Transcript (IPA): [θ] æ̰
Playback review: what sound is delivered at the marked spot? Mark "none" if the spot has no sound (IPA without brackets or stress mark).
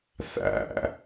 θ